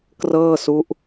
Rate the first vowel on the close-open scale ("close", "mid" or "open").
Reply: mid